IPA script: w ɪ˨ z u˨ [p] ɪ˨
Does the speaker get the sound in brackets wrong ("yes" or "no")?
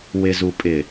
yes